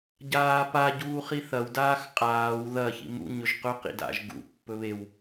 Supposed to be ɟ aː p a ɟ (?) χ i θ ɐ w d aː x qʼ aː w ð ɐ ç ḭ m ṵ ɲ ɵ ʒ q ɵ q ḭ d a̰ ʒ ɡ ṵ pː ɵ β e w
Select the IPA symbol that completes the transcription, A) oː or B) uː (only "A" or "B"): B